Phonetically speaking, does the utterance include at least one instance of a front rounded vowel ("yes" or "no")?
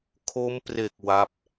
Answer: no